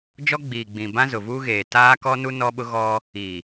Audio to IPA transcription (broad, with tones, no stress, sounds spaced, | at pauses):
d͡ʒ ɔ˦ ɡ͡b iː˨ ɡ͡b ĩ˨ b ã˦ z ʊ˨ v uː˦ ɣ eː˨ t aː˦ k ɔ˦ n u˦ n ɔ˦ ɓ ʊ˦ ɣ ɔ˦ | i˨